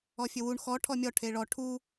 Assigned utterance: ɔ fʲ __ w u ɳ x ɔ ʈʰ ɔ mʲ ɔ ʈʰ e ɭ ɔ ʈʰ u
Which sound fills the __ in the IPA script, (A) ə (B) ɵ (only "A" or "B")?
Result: B